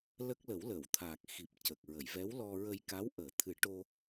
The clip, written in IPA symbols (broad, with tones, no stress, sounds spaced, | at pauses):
l ə˦˥ k̚ l ə˨˩˦ w l ə˨˩˨ w t̪ʰ aː˨˩ k̚ x i˨˩ p̚ c ə˨˩ k̚ ɹ ə˨˩˨ j v ɛ˧˥ w l ɔ˧ ɹ ə˧ j k a˧˥ w ʔ əː˨˩˦ t̪ʰ ɨ˨˩˦ ʈ o˧